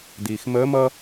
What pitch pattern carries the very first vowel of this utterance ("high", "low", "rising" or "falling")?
low